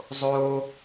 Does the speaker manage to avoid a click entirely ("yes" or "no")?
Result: yes